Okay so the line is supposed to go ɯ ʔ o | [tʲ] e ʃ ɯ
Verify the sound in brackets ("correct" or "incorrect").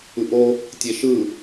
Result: correct